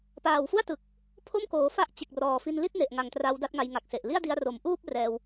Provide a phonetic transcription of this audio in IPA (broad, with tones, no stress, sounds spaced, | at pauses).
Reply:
p aː˨˩ w f u˥˩ a̯ t ɯ˨˩ k̚ | pʰ o˥˩ m k oː˩˦ f a˦˥ ʔ t͡ɕ e˨˩ k̚ r ɔː˩˦ f i˧ n l i˥˩ t̚ n e˨˩ ʔ ŋ a˨˩ ŋ t r a˧ w d a˥˩ t̚ ŋ a˧ j ŋ a˨˩ k̚ s e˨˩ ʔ l i˥˩ a̯ d i˧ a̯ r o˩˦ m ʔ uː˥˩ p̚ r ɛː˧ w